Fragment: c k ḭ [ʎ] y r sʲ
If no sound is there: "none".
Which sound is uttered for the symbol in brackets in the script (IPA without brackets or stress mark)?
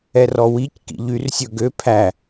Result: ʎ